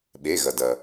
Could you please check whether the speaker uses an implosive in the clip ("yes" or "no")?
yes